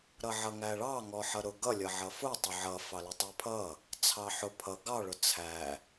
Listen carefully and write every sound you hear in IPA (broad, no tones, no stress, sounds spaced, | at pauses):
ɾ ʌ ʕ ʌ ŋ æ ɭ ɑ ŋ ɔ ħ ʌ ɾ ʊ ɡ ʌ lʲ ʌ ʕ ʌ f ʊ tˤ ʊ ʕ ʌ f ɑ l ʌ tˤ ə˞ pʰ ʌ | t͡sʰ ɑ ħ ʊ pʰ ʌ ɡ ɑ ɭ ʊ t͡sʰ æ